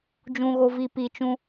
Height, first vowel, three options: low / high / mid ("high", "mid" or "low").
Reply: high